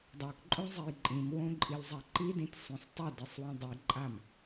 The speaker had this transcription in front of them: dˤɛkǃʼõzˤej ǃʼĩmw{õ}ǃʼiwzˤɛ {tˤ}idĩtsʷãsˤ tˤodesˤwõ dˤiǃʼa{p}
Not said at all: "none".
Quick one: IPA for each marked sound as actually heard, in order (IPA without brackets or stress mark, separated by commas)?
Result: õ, ǃ, m